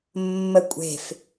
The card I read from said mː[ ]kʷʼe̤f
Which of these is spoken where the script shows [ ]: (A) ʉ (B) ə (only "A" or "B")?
B